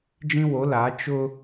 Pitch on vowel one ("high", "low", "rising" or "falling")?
high